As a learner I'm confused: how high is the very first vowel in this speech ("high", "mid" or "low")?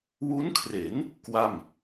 high